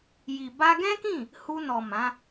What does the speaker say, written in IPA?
ji˨ ba˧ɡɛ̃˦kĩ˦˨ | hu˧nɔ˨ mã˨˦

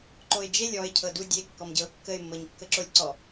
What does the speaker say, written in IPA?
ǃoɪ̯d͡ʒelʲ ɔɪ̯ cʰɤdu dʲe kːɔmɟɤʊ̯kːəɪ̯ mːɤɲkːəǁolʲǀɔ

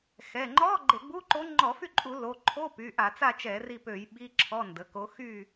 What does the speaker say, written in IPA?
xɛ˩˧˩ ŋ͡ǃɔ˧˥˧ ɡ͡ǃe˧˩˧ɡ͡bu˧˥˧ǃo˧˥ ŋ͡ǃɔ˧˩˧fy˦˨ǃʼu˧˩˧ lo˩˧˩ ǃʰo˧˥˧py˩˧˩ ʔa˧˩˧t͡sa˦˨t͡ʃɛ˧˩˧ ri˦˨pø˧˩˧j ɓi˧˥˧ǁʰɔ˧˥˧ ndə˩˧˩ko˧˥ xy˦˨

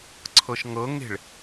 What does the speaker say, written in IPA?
ǀʰɤʃŋɤŋe̤ɭ

